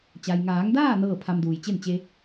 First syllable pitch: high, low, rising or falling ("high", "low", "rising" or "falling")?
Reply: low